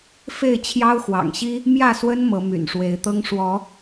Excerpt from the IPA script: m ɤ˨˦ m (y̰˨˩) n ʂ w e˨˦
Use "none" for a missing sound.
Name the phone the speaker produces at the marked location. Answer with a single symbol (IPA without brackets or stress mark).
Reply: y̰˨˩